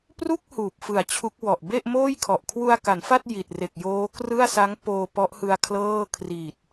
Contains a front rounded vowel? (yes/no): no